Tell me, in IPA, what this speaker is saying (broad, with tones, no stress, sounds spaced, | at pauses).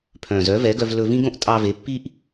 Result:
pʰ œ̃ː˨ z œ˨˦ v ɛ˨˦ ɡ œ˧ v l ɵ˧ v ĩ˦ ɡ õ˧ ʔ tʼ ɑ˧ v e˨˦ pː i˦ ʔ